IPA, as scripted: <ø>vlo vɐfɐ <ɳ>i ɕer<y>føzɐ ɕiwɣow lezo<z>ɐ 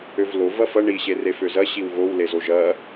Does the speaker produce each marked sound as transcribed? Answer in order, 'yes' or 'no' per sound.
yes, yes, no, no

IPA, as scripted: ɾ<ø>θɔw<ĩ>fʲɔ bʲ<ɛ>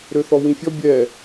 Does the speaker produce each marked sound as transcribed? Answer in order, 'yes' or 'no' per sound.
yes, yes, yes

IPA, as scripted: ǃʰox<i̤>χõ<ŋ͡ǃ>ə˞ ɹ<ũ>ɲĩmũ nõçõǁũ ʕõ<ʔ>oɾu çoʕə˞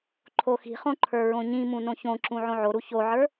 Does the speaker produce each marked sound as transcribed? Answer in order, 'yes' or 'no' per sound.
yes, no, no, no

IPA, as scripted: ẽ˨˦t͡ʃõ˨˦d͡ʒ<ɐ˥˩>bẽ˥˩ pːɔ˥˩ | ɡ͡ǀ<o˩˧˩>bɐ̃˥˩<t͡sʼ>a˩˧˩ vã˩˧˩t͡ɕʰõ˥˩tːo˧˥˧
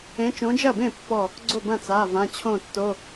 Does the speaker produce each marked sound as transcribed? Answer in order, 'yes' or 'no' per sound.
yes, no, no

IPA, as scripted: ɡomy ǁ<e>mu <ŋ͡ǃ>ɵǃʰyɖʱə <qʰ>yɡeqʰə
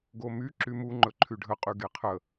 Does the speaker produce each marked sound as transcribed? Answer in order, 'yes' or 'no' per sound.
no, yes, no

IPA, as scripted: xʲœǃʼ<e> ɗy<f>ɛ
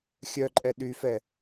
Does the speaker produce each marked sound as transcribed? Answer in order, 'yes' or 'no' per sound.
no, yes

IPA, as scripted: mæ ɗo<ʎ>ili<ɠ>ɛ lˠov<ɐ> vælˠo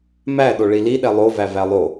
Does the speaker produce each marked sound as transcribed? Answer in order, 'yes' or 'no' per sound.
no, no, no

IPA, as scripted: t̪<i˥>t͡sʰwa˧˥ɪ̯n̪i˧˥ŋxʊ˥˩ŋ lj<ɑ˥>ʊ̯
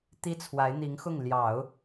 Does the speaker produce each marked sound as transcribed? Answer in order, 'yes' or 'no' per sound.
yes, no

